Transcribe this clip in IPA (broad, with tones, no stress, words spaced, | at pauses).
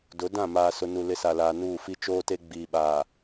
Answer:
dʊ˨˦ dã˦˨maː˨sʊ˨ nu˨lɪ˨˦sa˨laː˨ nuː˦˨fi˦ t͡ʃoː˦te˦ ɡ͡biː˨ɓaː˨